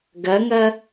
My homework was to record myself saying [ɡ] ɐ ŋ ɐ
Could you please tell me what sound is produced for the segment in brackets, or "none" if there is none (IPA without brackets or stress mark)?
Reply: ɡ